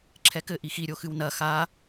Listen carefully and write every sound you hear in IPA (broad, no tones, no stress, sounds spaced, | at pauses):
ǁʰ ɛ k ɘ ʔ i x i ɾʲ o x ɨ w n ɐ x a